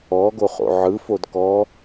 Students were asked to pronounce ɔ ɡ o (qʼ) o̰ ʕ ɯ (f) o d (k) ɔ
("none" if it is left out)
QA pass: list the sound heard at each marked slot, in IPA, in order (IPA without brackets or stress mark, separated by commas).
χ, f, k